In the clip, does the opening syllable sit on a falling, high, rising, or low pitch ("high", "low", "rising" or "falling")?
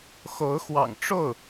rising